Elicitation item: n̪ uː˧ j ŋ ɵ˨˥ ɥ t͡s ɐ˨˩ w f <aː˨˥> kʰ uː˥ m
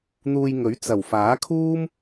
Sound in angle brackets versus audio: correct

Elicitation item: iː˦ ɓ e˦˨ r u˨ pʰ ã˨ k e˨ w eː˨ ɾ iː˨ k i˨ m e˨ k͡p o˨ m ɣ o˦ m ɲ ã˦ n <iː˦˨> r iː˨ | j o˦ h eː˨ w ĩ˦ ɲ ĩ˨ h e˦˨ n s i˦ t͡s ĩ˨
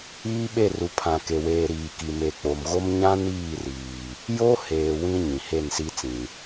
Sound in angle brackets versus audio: correct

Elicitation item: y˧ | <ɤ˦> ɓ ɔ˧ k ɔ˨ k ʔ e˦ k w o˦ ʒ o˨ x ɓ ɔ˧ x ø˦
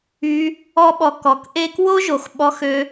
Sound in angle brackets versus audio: incorrect: ɔ˦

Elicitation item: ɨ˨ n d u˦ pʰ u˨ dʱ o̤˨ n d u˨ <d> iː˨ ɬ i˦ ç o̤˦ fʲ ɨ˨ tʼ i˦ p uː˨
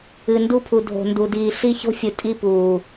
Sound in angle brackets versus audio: correct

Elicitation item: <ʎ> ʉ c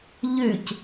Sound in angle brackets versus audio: correct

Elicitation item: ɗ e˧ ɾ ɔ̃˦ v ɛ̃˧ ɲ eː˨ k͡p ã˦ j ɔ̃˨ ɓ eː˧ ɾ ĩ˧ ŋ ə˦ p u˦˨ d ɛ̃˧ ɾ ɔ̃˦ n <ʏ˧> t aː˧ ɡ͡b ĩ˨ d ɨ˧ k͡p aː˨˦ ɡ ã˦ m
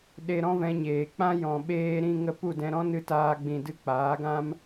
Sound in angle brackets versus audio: incorrect: ɨ˧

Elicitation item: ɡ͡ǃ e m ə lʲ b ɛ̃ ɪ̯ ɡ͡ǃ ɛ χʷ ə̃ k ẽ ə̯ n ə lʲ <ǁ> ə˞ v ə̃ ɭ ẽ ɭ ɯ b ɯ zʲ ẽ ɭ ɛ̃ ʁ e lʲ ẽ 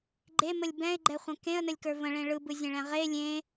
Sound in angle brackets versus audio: incorrect: k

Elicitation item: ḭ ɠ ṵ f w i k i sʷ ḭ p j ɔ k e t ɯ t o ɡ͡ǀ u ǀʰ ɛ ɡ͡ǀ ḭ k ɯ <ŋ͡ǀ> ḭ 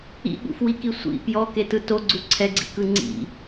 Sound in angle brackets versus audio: correct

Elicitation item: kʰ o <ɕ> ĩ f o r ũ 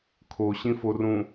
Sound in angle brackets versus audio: correct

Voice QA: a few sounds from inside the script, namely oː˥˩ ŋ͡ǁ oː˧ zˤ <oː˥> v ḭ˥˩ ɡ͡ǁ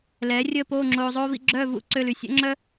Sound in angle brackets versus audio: correct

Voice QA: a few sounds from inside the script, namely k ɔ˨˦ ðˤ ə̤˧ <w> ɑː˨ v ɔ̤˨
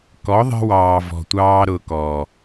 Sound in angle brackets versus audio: correct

